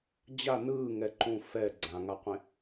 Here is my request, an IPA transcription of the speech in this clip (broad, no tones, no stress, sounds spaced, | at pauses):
d͡ʑ a n ɯː ŋ ɛ ǃ ũ f ɛ ɡ͡ǀ ã ŋ a qʷ ẽ